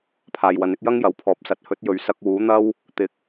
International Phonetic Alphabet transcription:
pʰ aː˨ j w ɐ˨˥ n ɪ˥ k̚ j ɐ˥ ŋ j ɐ˨˥ w pʰ ɔː˨˥ p̚ s ɐ˧ t̚ h ɵ˨˥ t̚ j ɵ˨ ɥ s ɐ˧ k̚ w uː˨˥ n̪ ɐ˥ w | t̪ ɪ˨ k̚

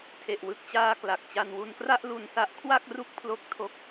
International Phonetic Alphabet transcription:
tʰ e˨˩ ʔ w ɯ˨˩ k̚ t͡ɕ aː˧ k l a˨˩ k̚ t͡ɕ a˧ n w u˧ n k r a˥˩ ʔ l u˧ n s a˦˥ ʔ kʰ w a˥˩ k̚ r u˥˩ k̚ pʰ l o˥˩ k̚ tʰ o˥˩ k̚

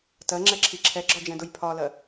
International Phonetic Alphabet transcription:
t ɜ ŋ͡ǁ ɛ ǁʰ i ǁʰ ɛ ɡ͡ǁ ɒ d͡ʒ ɛ̃ d ʊ j pʰ ɒ l ɜ

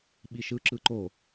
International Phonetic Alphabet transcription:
ɓ i ʃ ɯ ǁ ɯ ǃ o

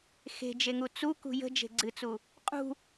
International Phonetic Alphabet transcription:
x e̤ d͡ʒ e ŋ u t͡s u k ṳ j ə̤ d͡ʒ e̤ ɡ͡ǀ ɨ t͡s u | qʼ ṳ

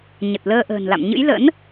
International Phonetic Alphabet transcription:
ɲ ə˨˩ t̚ l əː˧ ʔ ə̤ː˨˩ n l a̰˧˨ m ɲ ɨ̰˧˥ j l ə̰˧˥ n

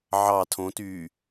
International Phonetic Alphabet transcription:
ʕ ɑ tʰ õ t yː

